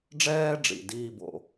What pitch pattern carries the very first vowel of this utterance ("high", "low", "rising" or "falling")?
high